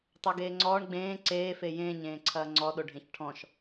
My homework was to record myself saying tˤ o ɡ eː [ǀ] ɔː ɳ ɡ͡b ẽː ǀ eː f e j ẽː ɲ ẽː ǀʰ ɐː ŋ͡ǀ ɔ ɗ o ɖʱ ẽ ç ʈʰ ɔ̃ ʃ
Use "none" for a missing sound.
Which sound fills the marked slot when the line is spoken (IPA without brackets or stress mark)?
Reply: ŋ͡ǀ